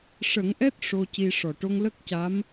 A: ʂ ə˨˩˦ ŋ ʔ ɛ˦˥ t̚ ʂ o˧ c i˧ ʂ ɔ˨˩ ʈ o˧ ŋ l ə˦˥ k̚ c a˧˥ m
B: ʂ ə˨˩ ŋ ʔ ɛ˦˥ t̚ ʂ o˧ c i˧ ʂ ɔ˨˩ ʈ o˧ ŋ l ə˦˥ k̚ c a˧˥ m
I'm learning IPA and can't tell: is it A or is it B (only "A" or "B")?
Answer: A